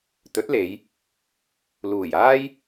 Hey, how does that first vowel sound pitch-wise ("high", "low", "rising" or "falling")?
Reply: rising